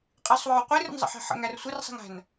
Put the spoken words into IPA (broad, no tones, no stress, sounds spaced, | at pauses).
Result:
qʼ ɪ sˤ w ɔ w qʷ i r ə̰ n zˤ ə̰ ħ ɛ̤ ħ ə̰ ŋ æ r sʷ ɪ r sˤ ɛ̤ ŋ æ̤ n